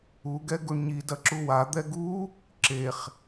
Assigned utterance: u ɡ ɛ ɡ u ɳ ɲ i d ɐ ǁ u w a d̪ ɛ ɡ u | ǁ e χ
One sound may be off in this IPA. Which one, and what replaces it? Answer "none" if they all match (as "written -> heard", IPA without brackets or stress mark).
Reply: none